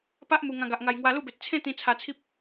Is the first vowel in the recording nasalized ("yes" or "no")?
no